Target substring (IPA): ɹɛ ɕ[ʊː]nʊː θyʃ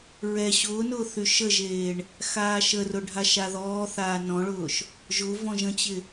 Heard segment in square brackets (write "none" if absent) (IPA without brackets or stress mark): ʊː